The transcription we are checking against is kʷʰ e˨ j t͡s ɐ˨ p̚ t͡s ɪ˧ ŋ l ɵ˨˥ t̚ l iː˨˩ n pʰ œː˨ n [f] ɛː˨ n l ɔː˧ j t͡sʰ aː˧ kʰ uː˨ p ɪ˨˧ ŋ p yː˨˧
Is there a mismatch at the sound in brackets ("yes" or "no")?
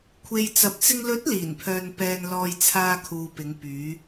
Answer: yes